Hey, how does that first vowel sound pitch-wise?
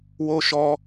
high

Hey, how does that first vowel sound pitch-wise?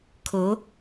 rising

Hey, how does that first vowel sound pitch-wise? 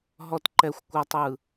low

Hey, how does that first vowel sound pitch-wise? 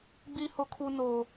low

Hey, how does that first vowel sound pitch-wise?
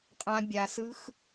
high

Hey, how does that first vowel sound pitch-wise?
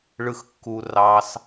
low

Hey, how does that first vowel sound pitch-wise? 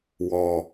low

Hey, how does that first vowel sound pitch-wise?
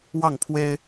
falling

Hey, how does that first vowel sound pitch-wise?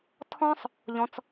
high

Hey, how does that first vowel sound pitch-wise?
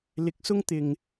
rising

